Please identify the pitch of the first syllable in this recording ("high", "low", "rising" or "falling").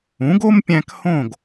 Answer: rising